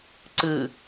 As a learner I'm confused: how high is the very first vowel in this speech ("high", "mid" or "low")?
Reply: high